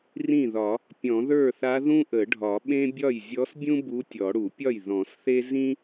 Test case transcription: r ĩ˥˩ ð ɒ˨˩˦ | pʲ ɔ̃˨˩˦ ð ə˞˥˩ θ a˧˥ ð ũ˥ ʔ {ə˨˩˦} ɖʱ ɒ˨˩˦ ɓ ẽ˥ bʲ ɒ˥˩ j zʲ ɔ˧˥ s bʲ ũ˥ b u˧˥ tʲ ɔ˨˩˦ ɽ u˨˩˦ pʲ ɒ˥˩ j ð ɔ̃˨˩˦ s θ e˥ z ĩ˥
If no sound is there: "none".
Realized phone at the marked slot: ə˨˩˦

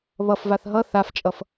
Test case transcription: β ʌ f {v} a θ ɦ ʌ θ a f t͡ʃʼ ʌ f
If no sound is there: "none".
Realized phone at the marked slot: v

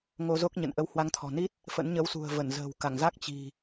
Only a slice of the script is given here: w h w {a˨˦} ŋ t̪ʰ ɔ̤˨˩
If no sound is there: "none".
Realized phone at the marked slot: a˨˦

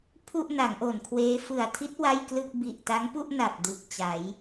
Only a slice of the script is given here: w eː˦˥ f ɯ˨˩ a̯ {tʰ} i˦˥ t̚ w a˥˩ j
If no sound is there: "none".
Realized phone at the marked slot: tʰ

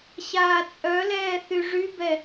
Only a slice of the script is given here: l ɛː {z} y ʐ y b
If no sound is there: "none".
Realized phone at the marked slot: θ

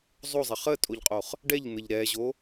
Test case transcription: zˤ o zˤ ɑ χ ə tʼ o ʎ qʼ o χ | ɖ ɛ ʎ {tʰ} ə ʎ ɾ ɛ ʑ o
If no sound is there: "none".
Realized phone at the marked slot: n̪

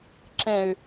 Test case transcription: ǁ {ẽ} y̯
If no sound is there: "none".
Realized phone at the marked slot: ẽ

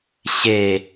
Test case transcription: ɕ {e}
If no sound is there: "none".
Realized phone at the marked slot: e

